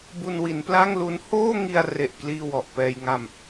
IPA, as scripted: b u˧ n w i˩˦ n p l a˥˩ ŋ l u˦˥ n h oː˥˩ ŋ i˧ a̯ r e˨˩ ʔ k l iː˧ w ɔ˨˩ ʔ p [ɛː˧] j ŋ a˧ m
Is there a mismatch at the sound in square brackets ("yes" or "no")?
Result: no